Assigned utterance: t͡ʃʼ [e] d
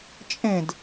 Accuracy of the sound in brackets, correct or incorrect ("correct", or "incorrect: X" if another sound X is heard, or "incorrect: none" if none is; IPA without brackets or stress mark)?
incorrect: ẽ